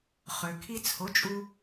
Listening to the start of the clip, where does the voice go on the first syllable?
low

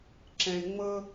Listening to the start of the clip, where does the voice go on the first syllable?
low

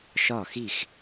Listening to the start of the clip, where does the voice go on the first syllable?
falling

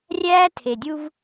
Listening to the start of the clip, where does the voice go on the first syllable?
high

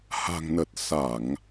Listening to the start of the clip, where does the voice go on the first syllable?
low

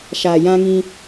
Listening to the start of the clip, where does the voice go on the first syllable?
low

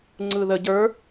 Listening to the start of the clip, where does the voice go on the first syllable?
low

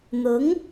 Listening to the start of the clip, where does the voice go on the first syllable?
rising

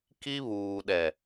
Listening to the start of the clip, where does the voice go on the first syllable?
high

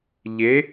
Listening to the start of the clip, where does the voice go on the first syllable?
rising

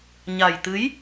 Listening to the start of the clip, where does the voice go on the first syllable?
low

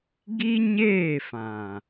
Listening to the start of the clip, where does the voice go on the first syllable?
high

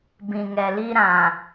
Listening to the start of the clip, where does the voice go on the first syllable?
low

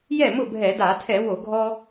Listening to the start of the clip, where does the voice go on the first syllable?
falling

